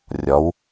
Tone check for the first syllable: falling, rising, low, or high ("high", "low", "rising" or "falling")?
rising